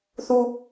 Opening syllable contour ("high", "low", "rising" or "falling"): high